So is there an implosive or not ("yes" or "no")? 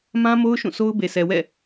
no